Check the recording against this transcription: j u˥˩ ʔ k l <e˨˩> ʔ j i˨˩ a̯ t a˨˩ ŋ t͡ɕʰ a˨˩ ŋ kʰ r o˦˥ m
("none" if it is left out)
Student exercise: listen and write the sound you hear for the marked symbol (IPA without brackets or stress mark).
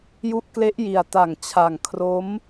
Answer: e˦˥